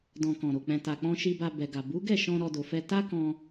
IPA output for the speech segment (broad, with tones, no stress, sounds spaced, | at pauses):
d ɔ̃˨ k ɔ̃˨ ɾ o˨ k͡p ɛ̃˨ t a˨ k͡p ɔ̃˧ ʃ i˧ b a˧ b ɛ˨ ɡ a˨ b u˨˦ ɡ ɛ˦˨ ʃ ɔ̃˧ ɾ ɔ˧ d o˨ f ɛ˧ t a˦ k ɔ̃˧